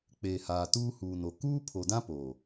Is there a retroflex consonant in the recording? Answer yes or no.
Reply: no